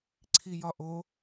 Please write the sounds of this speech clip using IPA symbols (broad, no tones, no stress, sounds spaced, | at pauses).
ǀʰ i j ɒ ʔ o